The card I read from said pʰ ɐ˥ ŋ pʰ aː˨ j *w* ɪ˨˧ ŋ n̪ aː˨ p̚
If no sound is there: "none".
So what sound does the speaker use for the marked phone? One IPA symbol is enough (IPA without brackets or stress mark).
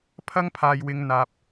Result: w